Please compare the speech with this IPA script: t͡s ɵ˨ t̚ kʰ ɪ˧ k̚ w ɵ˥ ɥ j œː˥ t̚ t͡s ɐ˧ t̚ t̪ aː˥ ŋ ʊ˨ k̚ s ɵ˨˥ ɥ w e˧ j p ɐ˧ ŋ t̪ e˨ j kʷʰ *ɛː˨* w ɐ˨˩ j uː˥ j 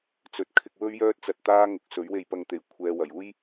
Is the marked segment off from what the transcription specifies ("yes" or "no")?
yes